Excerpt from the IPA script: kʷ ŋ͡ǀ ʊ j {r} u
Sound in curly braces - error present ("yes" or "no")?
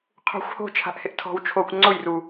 no